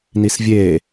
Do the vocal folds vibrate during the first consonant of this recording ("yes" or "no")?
yes